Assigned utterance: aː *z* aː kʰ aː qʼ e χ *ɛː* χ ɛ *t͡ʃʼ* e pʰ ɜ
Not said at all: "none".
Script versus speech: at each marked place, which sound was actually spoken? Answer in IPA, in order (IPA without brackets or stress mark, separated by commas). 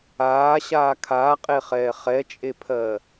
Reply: ɕ, ɛː, t͡ʃʼ